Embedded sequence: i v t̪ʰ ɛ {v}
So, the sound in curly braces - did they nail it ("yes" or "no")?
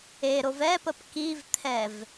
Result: yes